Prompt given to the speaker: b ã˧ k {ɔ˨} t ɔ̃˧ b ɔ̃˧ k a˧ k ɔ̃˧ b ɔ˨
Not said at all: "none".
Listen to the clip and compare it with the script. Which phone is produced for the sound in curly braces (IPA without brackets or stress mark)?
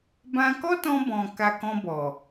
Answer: ɔ˦